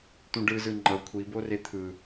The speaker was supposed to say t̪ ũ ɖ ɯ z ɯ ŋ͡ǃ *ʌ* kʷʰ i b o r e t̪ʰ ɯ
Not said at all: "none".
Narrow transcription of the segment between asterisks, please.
ʌ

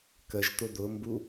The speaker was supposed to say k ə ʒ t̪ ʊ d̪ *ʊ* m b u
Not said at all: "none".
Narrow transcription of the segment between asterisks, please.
ʊ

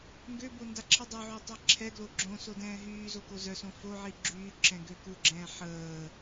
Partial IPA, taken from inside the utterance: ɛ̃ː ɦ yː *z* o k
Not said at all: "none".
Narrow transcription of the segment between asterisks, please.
z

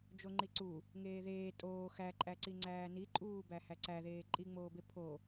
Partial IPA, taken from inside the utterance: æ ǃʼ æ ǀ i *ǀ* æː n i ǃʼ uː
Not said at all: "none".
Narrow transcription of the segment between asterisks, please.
ŋ͡ǀ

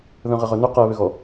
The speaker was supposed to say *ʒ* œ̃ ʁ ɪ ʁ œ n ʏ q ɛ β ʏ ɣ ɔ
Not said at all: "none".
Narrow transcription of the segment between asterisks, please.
ð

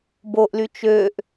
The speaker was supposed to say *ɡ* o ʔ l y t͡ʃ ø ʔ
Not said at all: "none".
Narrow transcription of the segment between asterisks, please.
b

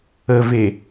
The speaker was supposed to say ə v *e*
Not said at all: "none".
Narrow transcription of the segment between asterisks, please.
e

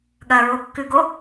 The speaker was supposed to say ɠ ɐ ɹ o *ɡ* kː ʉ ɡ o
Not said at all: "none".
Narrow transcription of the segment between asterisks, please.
none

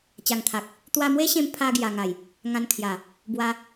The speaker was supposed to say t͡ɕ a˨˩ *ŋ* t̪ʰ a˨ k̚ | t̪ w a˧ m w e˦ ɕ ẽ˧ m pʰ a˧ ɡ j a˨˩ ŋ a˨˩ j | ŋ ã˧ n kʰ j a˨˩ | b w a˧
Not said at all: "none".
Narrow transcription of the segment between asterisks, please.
ŋ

